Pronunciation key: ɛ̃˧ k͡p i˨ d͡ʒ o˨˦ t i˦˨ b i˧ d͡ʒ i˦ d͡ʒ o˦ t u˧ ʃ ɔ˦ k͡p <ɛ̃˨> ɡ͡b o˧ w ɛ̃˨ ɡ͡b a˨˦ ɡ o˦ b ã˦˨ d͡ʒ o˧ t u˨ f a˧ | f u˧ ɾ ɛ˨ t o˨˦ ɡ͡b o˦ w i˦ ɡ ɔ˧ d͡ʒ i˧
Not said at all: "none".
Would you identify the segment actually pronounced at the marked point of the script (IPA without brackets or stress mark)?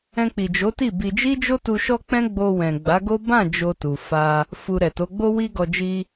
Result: ɛ̃˦